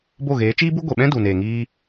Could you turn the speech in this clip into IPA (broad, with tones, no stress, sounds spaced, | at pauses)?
b o˦˨ ɣ eː˨˦ t͡ʃ iː˦ b u˦ ɡʷ e˨ ɓ ɛ̃˦ d u˨ n eː˨ ŋ iː˧